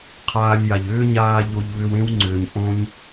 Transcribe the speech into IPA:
qʰaː˧lʲja˨ʎ ʏː˦ɲaː˧ ʎo˧ʎβʏ˧wẽ˦wŋ͡ǀʏː˨ɲ ʔõ˧ɲ

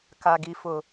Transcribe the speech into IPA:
ka˨ɡi˨ fʊ˨

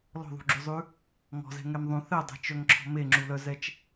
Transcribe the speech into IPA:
lɔ̤ðˤṳɡ͡ǁyzˤʉ | ŋɔ̤zɛ̤ŋɛm ðˤũ θɛdˤɛ̤t͡ʃœŋǁʰɔ̤ meŋ͡ǁulœzɛt͡ʃ

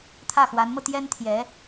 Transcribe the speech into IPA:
t̪ʰä˥˩xwa˧˥nmɤ˧ t̪jɛ˥nt̪ʰjɛ˧˥

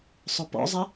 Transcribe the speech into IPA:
sˤʊpɔ̰zˤɪ

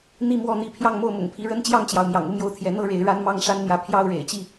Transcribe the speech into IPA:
n̪i˥˨ mwɔ˥˨n̪i˥˨ pʰjɑ˥˨ŋmo˥˨ʊ̯mʊ̰˨˩ŋpʰi˨˦ ɻə˦nt͡ɕjɑ˥˨ŋt͡ɕjɑ˩ʊ̯ mjɑ̰˨˩ŋu˦mjo˥˨ʊ̯t̪ʰjɛ˨˦ n̪ɤ˥˨ ɻe˨˦ɪ̯ ɻa˦nmɑ˥˨ŋ ʂa˦nn̪jä˨˦ pʰjɑ˥˨ʊ̯ɻḛ˨˩ɪ̯t͡ɕi˥˨

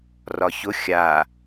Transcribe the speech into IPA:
rɒçʊ xʲa

